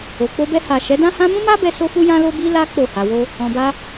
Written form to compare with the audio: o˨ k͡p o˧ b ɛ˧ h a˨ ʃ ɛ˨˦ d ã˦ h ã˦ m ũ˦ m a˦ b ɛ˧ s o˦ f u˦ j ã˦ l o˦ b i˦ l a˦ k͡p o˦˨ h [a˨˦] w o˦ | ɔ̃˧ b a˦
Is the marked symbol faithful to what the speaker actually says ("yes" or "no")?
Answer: no